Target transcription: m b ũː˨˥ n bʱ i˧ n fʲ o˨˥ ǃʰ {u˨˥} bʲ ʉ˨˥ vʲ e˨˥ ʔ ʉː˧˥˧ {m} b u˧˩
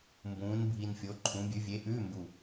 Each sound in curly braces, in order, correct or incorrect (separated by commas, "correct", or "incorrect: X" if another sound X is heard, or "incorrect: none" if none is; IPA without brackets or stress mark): incorrect: ũ˨˥, correct